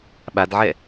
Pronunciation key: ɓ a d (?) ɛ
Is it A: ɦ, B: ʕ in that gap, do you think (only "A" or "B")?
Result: B